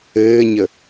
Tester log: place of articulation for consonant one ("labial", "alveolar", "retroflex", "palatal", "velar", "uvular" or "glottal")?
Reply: palatal